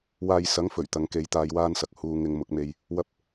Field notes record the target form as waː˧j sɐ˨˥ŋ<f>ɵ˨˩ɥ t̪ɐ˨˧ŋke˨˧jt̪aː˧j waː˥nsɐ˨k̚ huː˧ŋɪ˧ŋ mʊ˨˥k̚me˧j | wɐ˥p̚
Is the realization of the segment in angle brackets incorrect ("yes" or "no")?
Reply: no